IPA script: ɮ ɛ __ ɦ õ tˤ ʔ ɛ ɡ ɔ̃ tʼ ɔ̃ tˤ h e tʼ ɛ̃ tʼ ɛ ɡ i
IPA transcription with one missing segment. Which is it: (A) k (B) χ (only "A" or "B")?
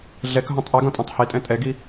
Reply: A